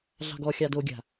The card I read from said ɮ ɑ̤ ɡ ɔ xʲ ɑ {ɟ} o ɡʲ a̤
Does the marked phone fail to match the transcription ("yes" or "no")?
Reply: yes